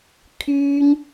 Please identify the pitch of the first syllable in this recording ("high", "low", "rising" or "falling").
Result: high